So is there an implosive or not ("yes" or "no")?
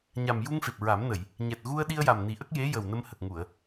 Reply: yes